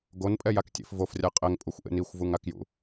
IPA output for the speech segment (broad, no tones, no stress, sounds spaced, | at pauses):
ɡ o n pʼ ɛ j a k tʲ ḛ f v o f rʲ a qʼ ɛ ŋ pʼ u xʷ ʔ ḛ n i xʷ v u ŋ a k j ṵ